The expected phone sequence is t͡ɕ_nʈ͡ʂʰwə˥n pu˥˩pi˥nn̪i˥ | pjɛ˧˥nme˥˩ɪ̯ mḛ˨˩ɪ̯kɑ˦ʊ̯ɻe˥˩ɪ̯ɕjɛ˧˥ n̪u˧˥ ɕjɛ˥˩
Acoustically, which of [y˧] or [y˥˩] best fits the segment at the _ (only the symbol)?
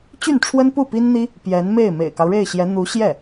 y˥˩